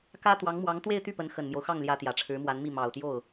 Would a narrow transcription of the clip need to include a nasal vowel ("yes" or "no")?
no